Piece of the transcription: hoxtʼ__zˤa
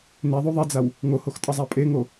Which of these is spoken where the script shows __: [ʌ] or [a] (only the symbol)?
ʌ